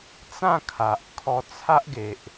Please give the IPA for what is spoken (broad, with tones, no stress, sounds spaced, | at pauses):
t͡s ã˥˧ kʰ a˨ ʔ kʰ ɔ˧ t͡sʰ a˦ ʔ ɡ e˨ ʔ